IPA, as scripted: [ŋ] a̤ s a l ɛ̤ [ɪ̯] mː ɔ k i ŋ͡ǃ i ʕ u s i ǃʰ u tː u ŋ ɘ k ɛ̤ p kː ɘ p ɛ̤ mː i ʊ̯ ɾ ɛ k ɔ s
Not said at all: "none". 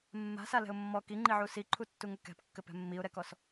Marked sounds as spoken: mː, ʊ̯

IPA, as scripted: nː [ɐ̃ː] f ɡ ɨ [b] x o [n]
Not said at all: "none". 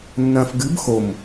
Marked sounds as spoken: ɐ̃ː, b, m

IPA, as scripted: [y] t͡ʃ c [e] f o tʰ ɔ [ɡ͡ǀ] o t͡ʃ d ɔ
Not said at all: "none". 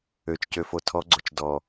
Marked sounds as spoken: ø, ø, ɡ͡ǀ

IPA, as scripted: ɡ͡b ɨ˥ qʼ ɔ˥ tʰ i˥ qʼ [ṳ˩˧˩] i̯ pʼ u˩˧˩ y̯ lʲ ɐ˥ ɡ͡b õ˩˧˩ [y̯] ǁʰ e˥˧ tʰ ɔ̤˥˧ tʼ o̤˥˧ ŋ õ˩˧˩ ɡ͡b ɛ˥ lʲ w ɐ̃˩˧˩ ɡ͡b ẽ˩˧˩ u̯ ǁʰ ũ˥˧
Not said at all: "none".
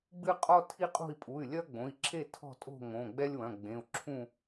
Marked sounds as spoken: ṳ˥˧, i̯

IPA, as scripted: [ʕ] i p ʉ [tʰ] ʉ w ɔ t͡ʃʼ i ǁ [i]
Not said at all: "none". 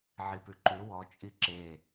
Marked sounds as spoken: ʕ, ǃ, e

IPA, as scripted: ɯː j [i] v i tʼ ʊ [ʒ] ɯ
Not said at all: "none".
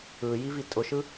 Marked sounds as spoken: i, ʃ

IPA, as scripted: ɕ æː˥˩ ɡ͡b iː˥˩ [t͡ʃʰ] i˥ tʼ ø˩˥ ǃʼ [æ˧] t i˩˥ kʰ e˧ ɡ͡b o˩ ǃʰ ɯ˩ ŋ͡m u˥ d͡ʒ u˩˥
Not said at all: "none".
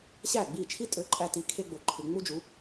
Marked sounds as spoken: t͡ʃʰ, æ˧

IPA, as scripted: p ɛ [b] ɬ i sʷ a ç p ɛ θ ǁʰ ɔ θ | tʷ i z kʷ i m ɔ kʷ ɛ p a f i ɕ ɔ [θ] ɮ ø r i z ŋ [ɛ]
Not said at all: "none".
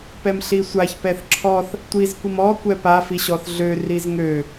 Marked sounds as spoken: m, θ, ø

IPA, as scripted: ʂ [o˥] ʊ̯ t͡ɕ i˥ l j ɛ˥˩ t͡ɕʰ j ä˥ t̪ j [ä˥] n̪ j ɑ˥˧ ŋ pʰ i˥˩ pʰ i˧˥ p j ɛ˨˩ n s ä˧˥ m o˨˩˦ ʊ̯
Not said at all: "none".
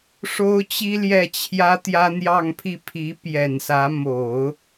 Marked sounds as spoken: o˥, ä˥

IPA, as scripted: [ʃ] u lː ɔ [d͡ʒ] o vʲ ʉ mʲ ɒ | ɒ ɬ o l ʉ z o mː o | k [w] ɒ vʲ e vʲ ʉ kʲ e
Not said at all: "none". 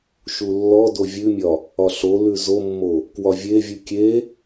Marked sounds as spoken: ʃ, d, w

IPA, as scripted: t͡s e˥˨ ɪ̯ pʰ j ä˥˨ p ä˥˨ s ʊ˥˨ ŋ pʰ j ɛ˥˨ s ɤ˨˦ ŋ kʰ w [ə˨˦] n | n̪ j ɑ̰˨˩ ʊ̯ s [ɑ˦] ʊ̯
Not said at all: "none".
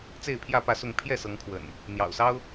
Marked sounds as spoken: ə̰˨˩, ɑ˦

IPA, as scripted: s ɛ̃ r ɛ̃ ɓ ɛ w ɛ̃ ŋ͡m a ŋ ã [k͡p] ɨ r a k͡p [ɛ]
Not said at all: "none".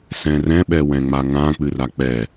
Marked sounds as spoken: k͡p, ɛ

